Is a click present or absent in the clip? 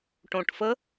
absent